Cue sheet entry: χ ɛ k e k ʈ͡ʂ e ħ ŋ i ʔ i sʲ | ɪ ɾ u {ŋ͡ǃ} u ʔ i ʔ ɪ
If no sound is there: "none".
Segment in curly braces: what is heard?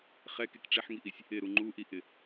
ŋ͡ǃ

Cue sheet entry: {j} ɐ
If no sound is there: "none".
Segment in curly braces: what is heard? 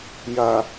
j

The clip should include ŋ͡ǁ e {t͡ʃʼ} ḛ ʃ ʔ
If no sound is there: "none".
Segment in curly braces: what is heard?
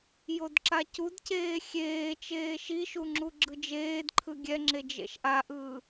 d͡ʒ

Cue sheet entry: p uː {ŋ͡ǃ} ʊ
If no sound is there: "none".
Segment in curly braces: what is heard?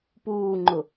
ŋ͡ǃ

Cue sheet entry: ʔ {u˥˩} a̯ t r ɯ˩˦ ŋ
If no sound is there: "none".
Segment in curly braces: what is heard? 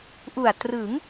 u˨˩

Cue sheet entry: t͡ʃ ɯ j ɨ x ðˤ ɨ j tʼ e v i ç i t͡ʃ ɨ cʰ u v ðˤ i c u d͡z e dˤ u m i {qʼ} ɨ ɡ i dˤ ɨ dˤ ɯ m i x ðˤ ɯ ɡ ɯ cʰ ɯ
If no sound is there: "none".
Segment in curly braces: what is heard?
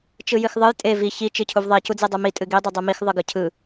tʼ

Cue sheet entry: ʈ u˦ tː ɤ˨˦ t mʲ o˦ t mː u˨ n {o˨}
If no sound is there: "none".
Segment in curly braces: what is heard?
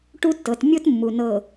ɤ˨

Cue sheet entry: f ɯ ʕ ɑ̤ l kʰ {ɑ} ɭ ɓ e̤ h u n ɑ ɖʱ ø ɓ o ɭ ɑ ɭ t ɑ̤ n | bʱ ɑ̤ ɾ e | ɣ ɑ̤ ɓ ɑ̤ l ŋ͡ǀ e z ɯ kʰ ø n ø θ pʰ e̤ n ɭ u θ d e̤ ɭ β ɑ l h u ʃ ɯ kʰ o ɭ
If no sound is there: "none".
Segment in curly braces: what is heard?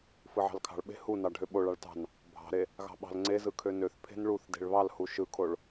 ɑ̤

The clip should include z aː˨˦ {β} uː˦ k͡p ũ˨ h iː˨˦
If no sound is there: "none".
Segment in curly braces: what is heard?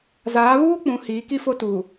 β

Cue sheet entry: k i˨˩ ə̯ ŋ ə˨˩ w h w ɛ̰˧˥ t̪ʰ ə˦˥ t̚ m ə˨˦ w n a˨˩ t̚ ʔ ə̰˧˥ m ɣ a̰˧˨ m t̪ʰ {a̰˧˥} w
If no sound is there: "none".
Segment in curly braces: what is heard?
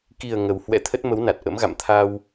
a˧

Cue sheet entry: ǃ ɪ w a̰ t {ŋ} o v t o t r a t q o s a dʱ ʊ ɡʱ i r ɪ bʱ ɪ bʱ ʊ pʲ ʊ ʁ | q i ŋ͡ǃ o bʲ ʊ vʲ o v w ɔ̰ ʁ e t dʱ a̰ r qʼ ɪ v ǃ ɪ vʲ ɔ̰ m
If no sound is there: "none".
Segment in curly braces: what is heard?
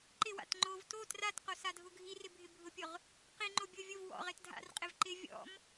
ŋ͡ǃ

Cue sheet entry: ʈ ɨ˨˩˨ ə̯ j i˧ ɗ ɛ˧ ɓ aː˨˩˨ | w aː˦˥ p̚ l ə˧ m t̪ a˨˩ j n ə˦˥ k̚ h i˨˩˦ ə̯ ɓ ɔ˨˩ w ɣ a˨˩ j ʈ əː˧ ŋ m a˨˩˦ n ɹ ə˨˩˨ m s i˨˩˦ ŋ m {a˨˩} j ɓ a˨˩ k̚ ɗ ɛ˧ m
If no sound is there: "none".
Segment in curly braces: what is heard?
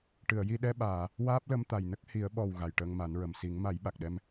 a˨˩˦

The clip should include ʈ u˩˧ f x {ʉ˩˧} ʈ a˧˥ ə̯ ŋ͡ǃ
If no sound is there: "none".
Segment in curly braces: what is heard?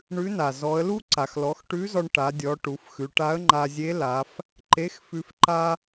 ʉ˩˧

